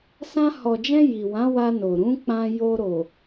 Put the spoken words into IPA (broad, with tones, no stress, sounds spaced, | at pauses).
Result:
s ã˧ h ɔ˨ d͡ʒ ɛ̃˧ j i˨ w ã˨˦ w a˧ n o˨ ɾ ũ˨˦ k͡p ã˧ j o˧ ɾ o˨